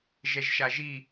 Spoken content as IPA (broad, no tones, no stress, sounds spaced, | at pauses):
ʒ ɛ ʒ ʃ a ʒ i